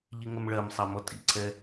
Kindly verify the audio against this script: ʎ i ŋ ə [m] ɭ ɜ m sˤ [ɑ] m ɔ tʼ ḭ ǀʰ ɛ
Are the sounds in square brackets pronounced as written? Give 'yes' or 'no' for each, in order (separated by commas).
yes, yes